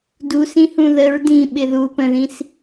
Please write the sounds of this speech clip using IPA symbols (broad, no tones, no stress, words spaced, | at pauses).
dusĩhũ ðəɹ dĩɓɪ ðu pə̃ðĩs